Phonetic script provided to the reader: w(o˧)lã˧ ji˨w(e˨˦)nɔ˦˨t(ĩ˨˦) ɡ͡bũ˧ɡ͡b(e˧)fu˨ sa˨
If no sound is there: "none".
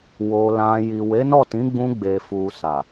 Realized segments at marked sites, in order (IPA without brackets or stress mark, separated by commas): o˧, e˨˦, ĩ˨˦, e˨